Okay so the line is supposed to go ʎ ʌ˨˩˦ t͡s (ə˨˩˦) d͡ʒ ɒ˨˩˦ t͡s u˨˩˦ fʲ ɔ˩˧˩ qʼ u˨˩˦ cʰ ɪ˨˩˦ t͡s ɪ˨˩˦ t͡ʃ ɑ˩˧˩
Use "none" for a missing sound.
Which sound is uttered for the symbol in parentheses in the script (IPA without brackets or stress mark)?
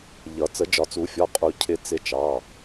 ə˨˩˦